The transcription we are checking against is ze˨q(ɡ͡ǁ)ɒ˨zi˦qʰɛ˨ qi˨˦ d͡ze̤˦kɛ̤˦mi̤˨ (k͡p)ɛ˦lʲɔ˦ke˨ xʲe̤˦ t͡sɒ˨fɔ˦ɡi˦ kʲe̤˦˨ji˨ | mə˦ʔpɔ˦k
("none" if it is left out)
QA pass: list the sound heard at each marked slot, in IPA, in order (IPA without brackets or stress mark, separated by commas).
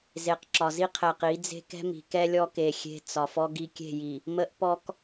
ǁ, k